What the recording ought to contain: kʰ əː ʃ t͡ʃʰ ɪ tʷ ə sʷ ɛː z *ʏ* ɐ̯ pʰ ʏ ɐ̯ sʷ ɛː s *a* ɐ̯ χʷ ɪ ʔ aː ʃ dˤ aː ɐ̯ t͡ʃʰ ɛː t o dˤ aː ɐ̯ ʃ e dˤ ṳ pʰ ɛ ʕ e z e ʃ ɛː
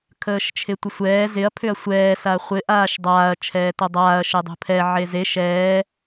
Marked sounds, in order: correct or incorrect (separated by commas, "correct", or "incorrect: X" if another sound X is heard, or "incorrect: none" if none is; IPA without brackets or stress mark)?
incorrect: ɪ, correct